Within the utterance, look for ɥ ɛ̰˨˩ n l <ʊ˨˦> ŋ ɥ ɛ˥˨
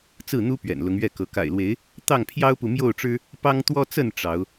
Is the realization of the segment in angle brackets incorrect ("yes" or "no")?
no